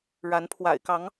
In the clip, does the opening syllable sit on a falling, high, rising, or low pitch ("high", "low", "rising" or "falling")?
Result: rising